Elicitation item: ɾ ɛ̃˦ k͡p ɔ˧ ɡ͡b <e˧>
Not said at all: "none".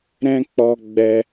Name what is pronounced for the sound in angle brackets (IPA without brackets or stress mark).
ɛ˧